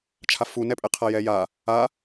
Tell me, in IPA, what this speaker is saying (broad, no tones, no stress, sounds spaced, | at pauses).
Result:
t͡ʃʰ a f u n ɛ pʼ ɛ qʰ a j ɛ j a | a